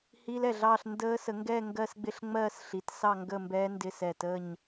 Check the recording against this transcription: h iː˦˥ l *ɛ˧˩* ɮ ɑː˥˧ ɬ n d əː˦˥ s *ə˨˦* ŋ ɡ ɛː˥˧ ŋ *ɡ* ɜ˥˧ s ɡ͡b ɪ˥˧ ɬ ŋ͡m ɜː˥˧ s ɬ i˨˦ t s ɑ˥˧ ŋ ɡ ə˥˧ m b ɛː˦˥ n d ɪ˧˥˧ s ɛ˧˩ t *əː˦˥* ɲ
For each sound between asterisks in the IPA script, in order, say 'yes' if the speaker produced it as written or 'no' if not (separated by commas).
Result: yes, yes, yes, no